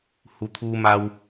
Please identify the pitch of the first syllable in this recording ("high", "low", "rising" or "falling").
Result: low